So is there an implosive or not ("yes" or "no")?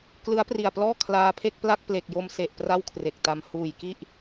no